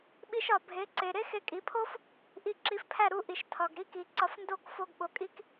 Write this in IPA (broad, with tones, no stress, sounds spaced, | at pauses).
ɓ i˧ ʃ ɒ˩ bʱ e˩˥ ǀ e˩ ɾ e˥ x e˧ kʼ i˩˥ pʰ o˥ f | ʔ i˧ ǁ i˩˥ f pʰ æ˥˩ ɾ u˥˩ ʔ i˩ ʃ tʰ ɒ˩ ɡ ɾ i˥ k i˩ ǀ ɒ˧ f n d o˥˩ k f o˧ ɡ ɓ o˩˥ kʼ i˥ k